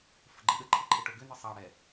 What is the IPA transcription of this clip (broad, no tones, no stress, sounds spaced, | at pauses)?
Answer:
f ə ɡ͡ǃ ɪ ɗ ə ǃʰ ɪ ǃʰ ɪ ʈ o ɡ ʏ n ə sˤ ɑ ɽ ɛ